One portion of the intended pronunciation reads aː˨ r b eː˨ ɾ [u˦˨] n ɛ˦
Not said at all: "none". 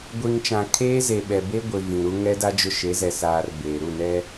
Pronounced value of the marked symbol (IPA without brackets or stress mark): u˦˨